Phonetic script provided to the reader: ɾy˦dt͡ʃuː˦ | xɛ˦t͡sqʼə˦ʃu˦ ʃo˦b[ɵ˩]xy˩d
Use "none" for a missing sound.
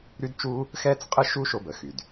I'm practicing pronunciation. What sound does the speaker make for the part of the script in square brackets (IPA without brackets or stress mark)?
ə˩